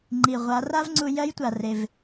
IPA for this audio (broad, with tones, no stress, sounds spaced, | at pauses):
ŋ͡ǃ i˩ ʁʷ a˩˧ r a˥ v ŋ͡ǀ u˧ j ɜ˧˥ j tʷ a˩ r e˩ v